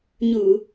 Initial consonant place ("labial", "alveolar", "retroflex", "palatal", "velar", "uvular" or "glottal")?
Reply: palatal